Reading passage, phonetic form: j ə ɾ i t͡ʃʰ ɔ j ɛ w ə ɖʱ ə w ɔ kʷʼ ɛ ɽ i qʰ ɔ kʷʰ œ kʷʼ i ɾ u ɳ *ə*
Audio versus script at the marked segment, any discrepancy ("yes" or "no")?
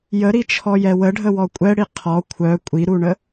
no